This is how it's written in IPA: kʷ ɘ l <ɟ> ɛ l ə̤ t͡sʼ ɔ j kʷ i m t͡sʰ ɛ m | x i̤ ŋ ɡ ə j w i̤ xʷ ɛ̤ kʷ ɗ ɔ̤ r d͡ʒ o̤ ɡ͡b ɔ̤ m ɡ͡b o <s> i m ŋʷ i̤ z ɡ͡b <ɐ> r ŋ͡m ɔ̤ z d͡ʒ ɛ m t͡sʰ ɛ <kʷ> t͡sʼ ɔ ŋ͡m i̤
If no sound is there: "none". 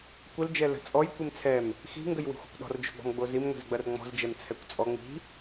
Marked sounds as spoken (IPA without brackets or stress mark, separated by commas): d͡ʒ, z, ɐ, kʷ